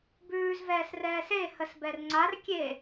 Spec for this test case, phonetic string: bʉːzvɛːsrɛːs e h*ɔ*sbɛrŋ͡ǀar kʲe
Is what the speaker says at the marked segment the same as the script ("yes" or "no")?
no